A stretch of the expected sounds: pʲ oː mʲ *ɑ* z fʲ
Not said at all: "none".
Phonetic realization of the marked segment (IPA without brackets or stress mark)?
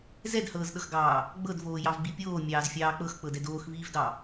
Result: ɑː